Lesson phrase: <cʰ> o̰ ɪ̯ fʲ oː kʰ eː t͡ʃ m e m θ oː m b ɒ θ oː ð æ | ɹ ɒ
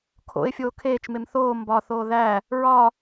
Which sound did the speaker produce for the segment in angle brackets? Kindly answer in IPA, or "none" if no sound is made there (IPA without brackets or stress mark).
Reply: kʰ